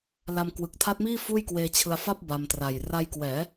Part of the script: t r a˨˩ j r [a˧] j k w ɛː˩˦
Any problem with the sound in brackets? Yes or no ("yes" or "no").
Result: no